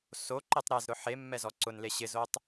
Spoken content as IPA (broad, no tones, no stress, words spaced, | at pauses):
soǃetˤ ɾɛzɾʊ ħe mːɛzɔǀʊnle ɕɪzotˤ